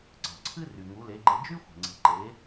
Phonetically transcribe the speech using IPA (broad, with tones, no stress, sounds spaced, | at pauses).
ǀ ɑ̤˩ ǀʰ ɨ˥ r y˩ ŋ u˩˥ l e˩˥ ɡ͡ǃ e˧ d͡ʒ y˥ xʷ e̤˩ ŋ͡ǀ e̤˩˥ ǃ e˩˥